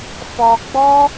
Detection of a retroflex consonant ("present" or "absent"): absent